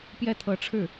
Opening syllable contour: falling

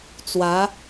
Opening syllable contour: rising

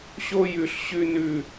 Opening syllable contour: high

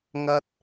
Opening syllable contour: high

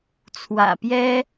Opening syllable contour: low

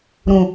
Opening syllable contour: low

